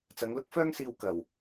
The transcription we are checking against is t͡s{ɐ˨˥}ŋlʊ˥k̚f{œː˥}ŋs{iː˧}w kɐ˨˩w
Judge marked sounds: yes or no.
no, yes, yes

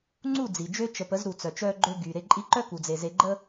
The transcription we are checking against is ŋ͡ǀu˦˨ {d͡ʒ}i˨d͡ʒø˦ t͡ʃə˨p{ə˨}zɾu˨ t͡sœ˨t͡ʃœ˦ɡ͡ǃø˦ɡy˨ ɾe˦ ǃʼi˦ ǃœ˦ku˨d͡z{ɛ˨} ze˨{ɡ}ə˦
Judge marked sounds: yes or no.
no, no, no, no

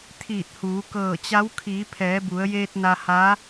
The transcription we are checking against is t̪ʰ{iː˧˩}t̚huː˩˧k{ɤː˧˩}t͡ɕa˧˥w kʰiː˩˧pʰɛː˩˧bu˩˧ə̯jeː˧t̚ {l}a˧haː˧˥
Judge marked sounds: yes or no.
yes, yes, no

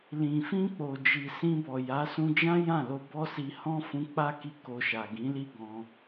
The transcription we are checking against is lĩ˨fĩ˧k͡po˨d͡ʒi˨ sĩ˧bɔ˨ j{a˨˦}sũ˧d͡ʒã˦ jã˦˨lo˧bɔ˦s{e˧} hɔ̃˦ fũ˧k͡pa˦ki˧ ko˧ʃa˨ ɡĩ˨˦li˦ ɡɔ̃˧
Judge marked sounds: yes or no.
yes, no

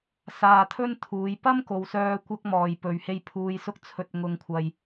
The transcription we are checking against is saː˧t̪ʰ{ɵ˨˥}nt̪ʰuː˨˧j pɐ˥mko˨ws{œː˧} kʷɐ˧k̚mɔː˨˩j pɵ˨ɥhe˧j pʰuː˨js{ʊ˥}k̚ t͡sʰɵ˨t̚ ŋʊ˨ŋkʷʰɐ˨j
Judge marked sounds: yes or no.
no, yes, no

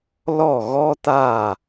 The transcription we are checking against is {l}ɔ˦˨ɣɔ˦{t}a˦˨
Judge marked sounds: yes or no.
yes, yes

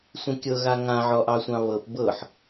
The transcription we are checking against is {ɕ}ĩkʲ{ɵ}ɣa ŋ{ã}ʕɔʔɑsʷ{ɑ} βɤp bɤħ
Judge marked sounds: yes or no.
no, no, yes, no

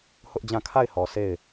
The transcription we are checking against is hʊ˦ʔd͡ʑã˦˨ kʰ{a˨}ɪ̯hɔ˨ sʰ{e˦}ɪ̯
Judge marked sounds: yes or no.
no, no

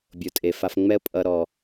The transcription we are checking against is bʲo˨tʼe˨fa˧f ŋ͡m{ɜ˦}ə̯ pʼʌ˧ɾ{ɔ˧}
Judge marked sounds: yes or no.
no, no

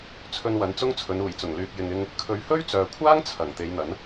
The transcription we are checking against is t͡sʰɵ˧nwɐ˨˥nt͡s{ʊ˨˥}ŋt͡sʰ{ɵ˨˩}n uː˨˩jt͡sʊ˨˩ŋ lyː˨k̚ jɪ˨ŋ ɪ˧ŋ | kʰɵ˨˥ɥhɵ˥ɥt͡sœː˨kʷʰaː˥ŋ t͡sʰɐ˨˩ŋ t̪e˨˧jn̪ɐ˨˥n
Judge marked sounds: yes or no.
no, no

